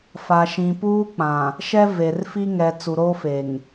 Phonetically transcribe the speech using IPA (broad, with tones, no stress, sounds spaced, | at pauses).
f a˨ ʃ ĩ˨ p uː˦ k͡p ã˨ | ʃ ɛ˦ v e˨ r f i˦ ŋ ɛ˨ t͡s u˨ ɾ oː˦ f e˨ ŋ